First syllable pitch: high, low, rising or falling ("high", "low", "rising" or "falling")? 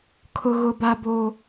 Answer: high